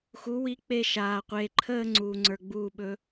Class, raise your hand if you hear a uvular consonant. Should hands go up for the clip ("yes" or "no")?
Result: yes